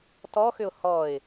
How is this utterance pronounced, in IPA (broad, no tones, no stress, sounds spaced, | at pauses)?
t ɔ x ʏ ʊ̯ h ɔ ɪ̯